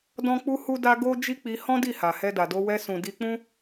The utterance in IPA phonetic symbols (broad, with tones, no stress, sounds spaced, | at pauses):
d ɔ̃˦ k͡p u˦ h u˦ d a˦ ɡ o˦ d͡ʒ i˦ k͡p i˧ h ɔ̃˦ d i˦˨ h a˨ h ɛ˧ d a˨ d o˧ w ɛ˧ s ũ˨ d i˧ k͡p ũ˦